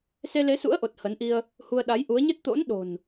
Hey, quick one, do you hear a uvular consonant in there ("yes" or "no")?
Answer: no